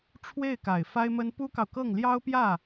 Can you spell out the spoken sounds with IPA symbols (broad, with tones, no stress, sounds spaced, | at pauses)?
ʈ͡ʂʰ w e˥˩ ɪ̯ k a˨˩ ɪ̯ f a˥ ɪ̯ m ə˥ n p u˥ k ɑ˨ ʊ̯ k ɤ˥˩ ŋ l j ɑ˥ ʊ̯ p j ä˥˩